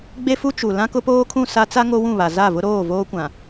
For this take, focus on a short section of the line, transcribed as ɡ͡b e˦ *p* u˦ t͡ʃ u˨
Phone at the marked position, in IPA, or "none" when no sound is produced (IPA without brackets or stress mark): f